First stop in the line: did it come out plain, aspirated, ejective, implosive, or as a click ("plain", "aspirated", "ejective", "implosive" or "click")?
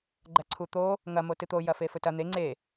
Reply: click